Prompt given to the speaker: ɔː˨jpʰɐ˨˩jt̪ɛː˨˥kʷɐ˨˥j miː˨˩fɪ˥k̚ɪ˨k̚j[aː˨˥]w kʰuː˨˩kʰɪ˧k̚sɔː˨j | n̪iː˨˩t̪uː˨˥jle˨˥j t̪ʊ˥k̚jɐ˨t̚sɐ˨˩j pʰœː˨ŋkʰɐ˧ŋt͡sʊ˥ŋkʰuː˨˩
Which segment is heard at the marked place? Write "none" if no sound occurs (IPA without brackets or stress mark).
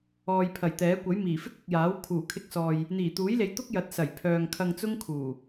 aː˨˥